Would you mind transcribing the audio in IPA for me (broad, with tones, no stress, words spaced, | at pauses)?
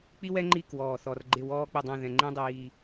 k͡pi˥wɛ˥ŋ͡ǃi˥˨ kwɔː˧˩θɔ˧rɡ͡ǃɪ˥˨ wɔː˥ k͡pɪ˥˨dˤɛ̃˥˨ðɛ̃˧ ŋ͡ǃẽ˥dˤiː˧